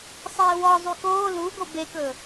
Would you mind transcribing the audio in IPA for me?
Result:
sˤ eː w ɔ zˤ y k oː l u ɡ o b e k ɵ

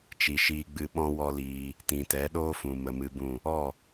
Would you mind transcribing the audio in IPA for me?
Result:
t͡ʃ i˨ ʃ iː˧ ɡ͡b ɨ˧ ɓ ɔ̃˦ w ɔ˦ l iː˧ | t ĩ˨ t ɛ˨˦ ɗ oː˦ f ũ˨ m ə˨ m ɨ˧ b ũ˦˨ | ɔ˦˨

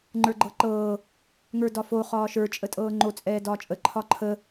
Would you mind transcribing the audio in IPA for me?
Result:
ŋ͡ǃ ə˞ ɡ͡ǃ ɤ ǃ ɤː | ŋ ə˞ d ɒ f o χ ɒː ʃ ə˞ t͡ʃʼ ə tʼ ɤː ŋ͡ǃ o t͡sʼ ɛː d ɒː t͡ʃʼ ə ǃʰ ɒ ǃʰ ə

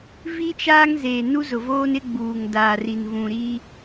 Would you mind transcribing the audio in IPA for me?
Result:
v i˦ t͡ʃ aː˦ ŋ z eː˨ n u˦ z ʊ˨ v oː˦ n ɪ˦ ɡ͡b uː˨ ŋ d aː˨ r i˨ n v ũ˨ ɾ i˦

